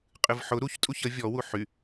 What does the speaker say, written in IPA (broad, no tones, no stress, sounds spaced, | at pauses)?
qʼ ɨ v ħ ʊ ɾ u ç tʼ u ç ə vʲ ɔ w u ħ y